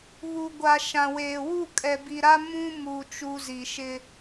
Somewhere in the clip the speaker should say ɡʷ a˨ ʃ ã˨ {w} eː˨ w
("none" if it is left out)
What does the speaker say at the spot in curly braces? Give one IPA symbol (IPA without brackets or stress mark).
w